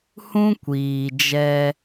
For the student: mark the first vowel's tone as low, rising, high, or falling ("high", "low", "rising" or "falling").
high